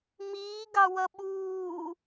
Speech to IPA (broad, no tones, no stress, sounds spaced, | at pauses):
m iː ɡ ɑ w ʌ ɓ uː